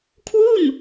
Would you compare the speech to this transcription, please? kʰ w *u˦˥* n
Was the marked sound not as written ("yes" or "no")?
yes